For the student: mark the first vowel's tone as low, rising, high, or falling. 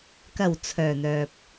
low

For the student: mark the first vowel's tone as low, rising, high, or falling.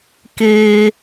high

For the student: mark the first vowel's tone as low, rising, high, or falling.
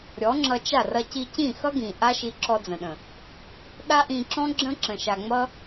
rising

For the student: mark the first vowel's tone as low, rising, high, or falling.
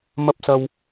high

